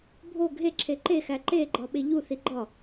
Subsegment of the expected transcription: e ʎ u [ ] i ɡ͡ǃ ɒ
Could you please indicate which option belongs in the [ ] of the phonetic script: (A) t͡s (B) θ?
B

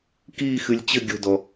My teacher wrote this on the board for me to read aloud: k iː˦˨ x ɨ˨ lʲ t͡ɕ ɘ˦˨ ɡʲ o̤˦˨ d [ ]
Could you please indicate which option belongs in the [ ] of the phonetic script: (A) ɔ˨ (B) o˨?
A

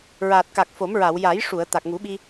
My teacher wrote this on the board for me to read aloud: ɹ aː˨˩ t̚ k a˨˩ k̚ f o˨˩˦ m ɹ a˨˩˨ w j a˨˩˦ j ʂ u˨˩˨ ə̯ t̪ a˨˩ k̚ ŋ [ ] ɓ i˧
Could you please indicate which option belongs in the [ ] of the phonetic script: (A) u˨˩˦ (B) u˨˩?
A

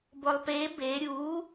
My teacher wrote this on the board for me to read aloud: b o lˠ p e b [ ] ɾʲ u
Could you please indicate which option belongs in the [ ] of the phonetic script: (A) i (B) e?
B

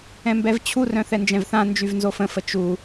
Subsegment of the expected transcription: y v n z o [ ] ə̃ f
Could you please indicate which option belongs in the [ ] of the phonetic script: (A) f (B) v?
A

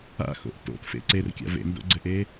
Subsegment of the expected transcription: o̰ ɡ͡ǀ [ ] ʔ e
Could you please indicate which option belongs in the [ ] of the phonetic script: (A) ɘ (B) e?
A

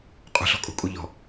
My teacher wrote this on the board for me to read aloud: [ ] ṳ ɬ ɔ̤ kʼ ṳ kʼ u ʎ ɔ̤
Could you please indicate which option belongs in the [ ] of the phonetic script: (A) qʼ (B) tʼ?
A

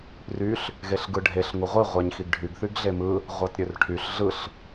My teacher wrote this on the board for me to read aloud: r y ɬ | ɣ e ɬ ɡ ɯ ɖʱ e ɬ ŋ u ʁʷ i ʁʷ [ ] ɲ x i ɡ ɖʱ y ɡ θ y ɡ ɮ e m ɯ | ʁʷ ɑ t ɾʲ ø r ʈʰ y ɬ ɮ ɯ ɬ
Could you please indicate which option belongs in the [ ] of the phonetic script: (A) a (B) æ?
B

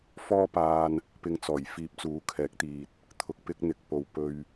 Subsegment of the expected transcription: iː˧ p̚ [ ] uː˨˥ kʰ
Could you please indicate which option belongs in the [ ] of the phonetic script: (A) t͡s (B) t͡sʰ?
A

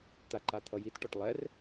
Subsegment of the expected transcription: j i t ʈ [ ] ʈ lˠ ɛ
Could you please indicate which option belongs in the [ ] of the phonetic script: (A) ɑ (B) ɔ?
B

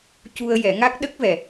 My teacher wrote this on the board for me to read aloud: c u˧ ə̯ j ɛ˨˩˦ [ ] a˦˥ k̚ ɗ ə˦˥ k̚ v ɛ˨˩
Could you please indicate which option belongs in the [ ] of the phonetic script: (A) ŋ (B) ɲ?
A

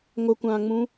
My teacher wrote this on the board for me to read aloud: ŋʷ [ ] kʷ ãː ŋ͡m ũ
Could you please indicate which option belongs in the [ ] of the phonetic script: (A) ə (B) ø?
A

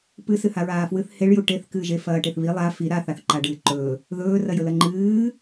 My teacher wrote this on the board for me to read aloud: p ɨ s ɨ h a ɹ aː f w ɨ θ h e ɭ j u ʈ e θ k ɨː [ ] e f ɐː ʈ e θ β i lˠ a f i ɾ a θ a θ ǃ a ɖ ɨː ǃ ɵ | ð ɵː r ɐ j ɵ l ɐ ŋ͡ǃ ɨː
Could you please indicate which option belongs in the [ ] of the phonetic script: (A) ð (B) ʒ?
B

